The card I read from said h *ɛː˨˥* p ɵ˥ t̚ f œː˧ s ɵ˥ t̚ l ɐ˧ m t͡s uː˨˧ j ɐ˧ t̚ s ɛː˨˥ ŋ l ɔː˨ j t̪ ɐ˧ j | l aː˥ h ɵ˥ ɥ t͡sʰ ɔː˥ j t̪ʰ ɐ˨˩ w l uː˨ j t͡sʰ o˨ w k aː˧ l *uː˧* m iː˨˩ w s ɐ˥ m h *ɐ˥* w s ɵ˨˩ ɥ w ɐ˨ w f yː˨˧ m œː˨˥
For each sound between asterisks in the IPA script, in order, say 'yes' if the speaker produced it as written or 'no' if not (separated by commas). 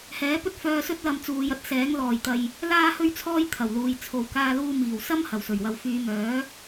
yes, yes, no